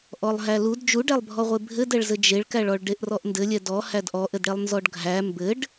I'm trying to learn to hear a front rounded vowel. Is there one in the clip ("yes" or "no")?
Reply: no